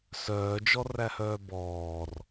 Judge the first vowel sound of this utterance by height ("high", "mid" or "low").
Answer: mid